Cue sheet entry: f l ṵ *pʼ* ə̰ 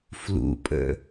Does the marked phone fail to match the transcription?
no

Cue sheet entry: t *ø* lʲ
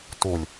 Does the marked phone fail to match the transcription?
yes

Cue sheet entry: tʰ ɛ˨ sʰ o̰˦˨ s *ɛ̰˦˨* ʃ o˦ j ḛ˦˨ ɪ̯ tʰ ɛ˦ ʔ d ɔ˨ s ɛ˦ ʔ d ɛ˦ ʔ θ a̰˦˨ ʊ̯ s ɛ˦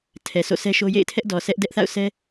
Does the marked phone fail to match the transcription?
yes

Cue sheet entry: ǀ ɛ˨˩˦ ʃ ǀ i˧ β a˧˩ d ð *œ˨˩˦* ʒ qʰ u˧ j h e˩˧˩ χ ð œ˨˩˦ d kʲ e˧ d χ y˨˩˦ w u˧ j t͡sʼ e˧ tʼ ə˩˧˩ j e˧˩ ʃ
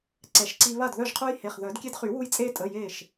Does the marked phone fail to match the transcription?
yes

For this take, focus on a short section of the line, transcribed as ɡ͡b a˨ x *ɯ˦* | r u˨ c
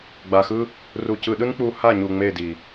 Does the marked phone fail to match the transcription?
no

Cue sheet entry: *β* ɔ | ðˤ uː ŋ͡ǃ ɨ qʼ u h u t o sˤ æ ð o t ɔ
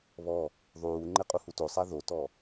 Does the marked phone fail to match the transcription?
no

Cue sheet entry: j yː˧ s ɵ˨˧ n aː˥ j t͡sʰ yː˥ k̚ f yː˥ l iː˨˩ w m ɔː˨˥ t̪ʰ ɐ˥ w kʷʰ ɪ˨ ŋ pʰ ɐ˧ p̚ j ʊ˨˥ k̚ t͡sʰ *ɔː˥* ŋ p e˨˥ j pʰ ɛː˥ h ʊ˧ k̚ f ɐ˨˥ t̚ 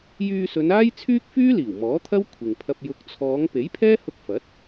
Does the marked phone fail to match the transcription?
yes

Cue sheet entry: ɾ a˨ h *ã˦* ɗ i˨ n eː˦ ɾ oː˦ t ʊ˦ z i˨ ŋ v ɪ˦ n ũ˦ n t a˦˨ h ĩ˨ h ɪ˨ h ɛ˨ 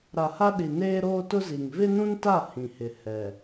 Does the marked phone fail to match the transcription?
yes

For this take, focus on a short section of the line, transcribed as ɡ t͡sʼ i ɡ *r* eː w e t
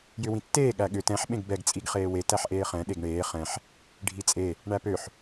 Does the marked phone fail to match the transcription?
yes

